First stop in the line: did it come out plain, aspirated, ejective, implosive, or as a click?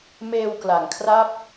plain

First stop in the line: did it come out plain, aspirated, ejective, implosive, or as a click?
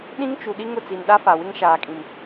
implosive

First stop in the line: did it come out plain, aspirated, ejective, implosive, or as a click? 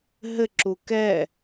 click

